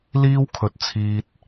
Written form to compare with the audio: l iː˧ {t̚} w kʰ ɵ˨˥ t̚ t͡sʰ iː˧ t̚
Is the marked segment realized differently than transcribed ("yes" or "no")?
yes